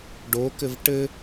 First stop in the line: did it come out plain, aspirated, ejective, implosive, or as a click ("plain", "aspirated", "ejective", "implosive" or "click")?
plain